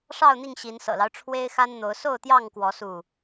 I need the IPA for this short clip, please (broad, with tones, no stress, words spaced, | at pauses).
ʂɑ˥˨ʊ̯ n̪i˥˨ŋɕi˨˦n sɤ̰˨˩lɑ˦ʊ̯ ʈ͡ʂʰwe˦ɪ̯xa˦nn̪o˨˦ʊ̯ so˥˨ʊ̯t̪jɑ˥˨ŋkwɔ˨˦ su˥˨